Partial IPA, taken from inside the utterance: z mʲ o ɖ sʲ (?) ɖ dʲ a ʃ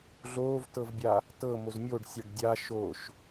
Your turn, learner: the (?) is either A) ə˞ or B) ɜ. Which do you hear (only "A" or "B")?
B